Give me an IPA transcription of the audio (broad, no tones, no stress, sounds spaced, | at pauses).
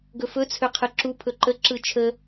ɡ ɵ f ɵ t͡sʰ ø qʰ ɯ ǁ u pʰ ɵ ǃ ə ǁ ɯ t͡ʃʰ ə